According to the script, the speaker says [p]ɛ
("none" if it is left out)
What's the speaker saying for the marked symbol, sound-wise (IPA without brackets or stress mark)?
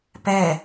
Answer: p